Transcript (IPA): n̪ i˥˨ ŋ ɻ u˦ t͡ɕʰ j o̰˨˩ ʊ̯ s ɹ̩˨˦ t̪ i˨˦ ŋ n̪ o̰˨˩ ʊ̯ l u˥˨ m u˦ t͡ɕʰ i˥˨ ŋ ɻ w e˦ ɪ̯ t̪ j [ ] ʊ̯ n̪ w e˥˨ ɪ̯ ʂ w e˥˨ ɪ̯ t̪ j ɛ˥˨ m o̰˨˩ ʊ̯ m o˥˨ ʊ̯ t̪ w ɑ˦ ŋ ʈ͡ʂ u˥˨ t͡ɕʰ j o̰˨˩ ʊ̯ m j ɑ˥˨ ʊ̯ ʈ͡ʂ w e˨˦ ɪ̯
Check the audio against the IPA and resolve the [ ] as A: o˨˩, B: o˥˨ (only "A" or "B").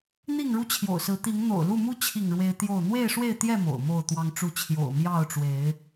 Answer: B